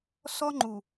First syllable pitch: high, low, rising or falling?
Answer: high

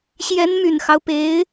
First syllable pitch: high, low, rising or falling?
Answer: rising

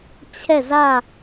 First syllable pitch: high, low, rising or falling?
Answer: falling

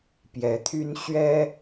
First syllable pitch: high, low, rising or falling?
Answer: rising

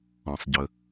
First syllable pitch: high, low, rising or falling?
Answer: low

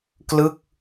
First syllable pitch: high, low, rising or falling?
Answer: falling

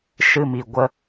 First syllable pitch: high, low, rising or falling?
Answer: low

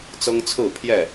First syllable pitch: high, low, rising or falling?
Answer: high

